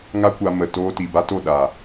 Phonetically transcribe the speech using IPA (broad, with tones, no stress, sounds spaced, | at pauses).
ŋ a˦ kʷ a˧ m ə˨ t oː˧ t iː˨ b a˦ t o˦˨ ɗ aː˨